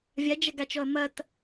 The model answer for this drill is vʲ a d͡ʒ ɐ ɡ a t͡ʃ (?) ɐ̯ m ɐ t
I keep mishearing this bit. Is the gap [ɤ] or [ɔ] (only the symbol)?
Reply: ɔ